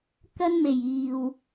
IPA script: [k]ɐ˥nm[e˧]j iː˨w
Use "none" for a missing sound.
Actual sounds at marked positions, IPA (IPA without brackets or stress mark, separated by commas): k, e˨˩